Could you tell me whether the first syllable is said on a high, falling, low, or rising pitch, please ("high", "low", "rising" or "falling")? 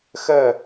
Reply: falling